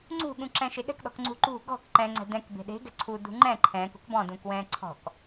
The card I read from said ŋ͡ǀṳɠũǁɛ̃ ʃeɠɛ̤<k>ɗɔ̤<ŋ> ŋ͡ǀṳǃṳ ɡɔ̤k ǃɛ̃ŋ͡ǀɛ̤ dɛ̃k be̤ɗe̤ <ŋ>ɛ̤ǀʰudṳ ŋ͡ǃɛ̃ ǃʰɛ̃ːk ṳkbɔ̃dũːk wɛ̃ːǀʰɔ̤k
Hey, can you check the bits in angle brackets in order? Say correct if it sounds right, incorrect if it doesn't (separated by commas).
correct, incorrect, incorrect